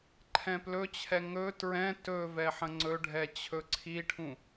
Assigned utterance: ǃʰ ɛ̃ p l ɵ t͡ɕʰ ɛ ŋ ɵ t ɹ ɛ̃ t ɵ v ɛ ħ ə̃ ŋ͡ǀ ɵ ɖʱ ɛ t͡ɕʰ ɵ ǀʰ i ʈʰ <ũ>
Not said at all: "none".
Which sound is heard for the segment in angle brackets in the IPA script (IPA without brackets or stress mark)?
ũ